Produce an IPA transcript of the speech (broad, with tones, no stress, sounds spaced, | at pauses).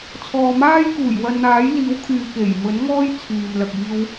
t͡sʰ ɔː˨ m aː˥ j k uː˨˩ j w ɐ˧ n n̪ aː˨˥ j l iː˨˥ w kʰ yː˨ k e˨˩ j m ɵ˨˥ n ŋ ɔː˥ j t͡sʰ yː˨ m l ɐ˨ k̚ iː˧ w